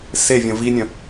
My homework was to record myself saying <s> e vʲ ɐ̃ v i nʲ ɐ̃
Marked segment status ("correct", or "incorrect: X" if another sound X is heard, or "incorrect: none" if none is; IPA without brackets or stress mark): correct